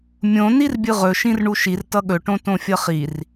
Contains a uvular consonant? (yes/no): yes